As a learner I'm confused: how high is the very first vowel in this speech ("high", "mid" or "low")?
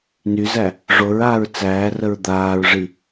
high